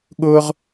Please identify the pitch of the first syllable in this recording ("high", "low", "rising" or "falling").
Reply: high